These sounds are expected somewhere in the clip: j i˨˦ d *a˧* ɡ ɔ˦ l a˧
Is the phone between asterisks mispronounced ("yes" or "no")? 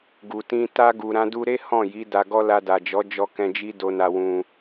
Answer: no